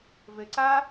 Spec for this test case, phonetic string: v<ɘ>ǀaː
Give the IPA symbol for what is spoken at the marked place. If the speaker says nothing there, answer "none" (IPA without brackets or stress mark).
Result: ɘ